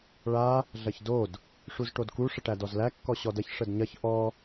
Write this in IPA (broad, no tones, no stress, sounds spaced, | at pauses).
ɭ a | ɮ ɐ ç d o d | ʂ u z ʈ o d k u ʂ ə ʈ æ d ɔ z l æ kː ɔ ɕ ɔ d ɐ ç ʂ ə d ɲ ɐ ç ʔ ɔ